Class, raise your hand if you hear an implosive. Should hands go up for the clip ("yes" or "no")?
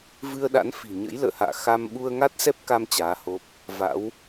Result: yes